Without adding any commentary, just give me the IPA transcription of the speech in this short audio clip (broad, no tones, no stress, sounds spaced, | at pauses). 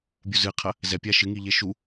bʲ u z ɨ qʰ ɐ | z ɛ pʲ a ʃ ɨ ŋ i ʎ e ʃ u